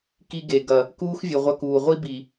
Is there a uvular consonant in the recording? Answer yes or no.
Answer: yes